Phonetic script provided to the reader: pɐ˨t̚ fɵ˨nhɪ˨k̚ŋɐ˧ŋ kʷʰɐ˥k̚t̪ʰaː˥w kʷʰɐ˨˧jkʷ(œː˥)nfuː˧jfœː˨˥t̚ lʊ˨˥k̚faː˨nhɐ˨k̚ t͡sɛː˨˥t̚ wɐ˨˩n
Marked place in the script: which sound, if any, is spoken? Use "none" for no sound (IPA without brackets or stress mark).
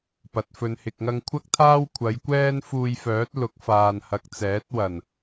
ɛː˥